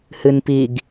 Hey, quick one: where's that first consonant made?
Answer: throat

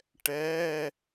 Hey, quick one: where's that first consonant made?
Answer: retroflex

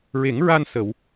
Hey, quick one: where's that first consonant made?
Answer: tongue tip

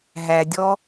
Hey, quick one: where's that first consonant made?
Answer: throat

